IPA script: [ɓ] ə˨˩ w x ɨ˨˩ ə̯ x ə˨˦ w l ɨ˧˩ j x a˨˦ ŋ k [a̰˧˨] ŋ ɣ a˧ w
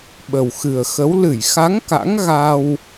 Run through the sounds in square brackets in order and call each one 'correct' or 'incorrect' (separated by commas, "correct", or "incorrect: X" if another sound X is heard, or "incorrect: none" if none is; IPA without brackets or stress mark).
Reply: correct, incorrect: a̰˧˥